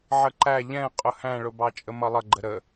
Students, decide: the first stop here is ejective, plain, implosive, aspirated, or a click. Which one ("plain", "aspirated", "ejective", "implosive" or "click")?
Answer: click